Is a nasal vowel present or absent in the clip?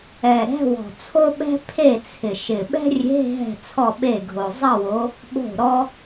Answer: absent